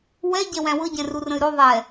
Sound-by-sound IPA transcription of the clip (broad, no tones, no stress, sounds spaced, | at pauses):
w ɛ ɟ ɛ w æ̃ w ɤ ɟ ɛ̃ r u r ə̃ y̯ ɾ o ðˤ ɛ